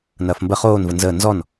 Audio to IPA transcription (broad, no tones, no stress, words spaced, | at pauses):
nɐːfmbə χoːnvə nzəː nzɔn